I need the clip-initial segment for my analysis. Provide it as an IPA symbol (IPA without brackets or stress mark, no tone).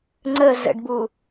ŋ͡ǀ